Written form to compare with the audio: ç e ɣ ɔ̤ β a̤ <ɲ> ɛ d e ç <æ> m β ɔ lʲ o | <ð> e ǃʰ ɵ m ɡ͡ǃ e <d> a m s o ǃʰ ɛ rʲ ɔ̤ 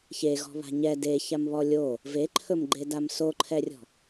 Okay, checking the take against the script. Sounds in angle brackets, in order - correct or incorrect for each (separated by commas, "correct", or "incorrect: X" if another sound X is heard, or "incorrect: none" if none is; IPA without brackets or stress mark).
correct, incorrect: a, incorrect: v, correct